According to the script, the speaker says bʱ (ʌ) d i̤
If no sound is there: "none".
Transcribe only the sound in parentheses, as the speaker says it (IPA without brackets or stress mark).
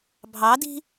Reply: ɑ